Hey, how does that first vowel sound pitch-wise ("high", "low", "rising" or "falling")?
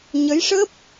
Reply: rising